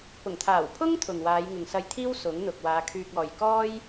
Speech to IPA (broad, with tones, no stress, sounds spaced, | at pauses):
p ʊ˨˩ ŋ t̪ʰ aː˨˩ w pʰ ʊ˥ ŋ t̪ʰ ʊ˨ ŋ w aː˨˧ j ŋ ɪ˨ ŋ s ɐ˧ j t̪ʰ iː˥ w s ʊ˨˥ ŋ n̪ ʊ˨ k̚ w aː˨˧ kʰ yː˧ k̚ ɔː˨ j k ɔː˥ j